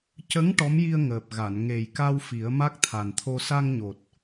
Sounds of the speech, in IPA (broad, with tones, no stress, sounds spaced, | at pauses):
c ə˧˥ ŋ ʈ ɔ˧˥ m j i˧ ə̯ ŋ əː˨˩ p̚ ɣ a˨˩˨ n ŋ e˨˩ j k a˧ w f i˨˩˦ ə̯ m a˦˥ k̚ t̪ʰ a˨˩ n t̪ʰ o˧ s a˧ ŋ ɲ o˨˩ t̚